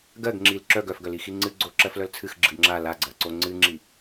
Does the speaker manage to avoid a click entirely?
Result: no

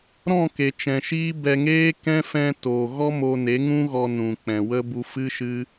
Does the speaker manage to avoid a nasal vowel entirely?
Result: no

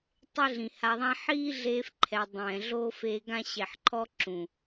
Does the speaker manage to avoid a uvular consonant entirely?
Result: yes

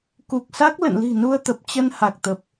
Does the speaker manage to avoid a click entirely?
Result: yes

